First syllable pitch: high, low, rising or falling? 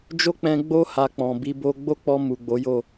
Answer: high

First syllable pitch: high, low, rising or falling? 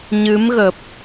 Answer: rising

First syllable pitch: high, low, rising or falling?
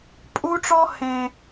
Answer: high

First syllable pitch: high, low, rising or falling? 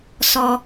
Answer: high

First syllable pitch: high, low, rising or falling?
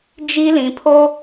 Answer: high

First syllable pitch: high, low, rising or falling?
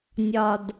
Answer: low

